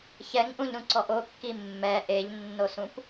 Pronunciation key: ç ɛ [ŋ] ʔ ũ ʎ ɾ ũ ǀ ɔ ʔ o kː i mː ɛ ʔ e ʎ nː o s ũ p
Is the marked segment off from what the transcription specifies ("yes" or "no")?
no